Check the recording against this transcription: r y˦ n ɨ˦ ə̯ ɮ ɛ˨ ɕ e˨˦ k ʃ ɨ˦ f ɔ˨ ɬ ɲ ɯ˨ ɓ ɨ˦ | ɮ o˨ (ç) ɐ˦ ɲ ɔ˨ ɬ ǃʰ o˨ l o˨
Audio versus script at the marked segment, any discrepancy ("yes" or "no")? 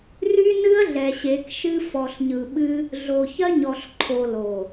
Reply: no